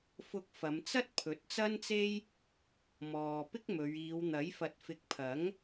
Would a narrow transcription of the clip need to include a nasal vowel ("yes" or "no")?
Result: no